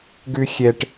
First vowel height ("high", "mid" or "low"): high